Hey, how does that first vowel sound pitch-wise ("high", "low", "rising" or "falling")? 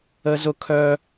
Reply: high